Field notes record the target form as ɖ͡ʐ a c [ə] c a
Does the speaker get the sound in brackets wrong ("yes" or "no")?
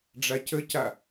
no